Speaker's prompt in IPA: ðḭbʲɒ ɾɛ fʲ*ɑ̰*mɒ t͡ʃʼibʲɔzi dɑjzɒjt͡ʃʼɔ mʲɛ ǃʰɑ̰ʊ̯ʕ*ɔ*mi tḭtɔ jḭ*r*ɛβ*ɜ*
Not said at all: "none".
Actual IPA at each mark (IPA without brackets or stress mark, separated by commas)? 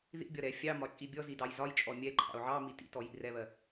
ɑ, ɑ, r, ɜ